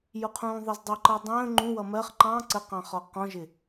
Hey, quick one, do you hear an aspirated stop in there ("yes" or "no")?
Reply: yes